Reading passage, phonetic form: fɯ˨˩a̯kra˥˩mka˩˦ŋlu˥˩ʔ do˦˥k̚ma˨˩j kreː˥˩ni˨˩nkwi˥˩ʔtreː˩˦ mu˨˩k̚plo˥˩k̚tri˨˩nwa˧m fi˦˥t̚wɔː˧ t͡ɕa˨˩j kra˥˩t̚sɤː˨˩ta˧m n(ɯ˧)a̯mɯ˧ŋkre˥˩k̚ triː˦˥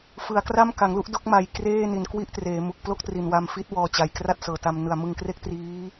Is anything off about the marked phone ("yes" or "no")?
yes